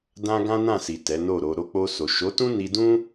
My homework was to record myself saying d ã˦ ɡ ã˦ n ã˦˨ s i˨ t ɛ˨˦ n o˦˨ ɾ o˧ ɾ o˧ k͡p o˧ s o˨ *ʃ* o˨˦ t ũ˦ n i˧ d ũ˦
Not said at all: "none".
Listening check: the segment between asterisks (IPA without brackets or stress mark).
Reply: ʃ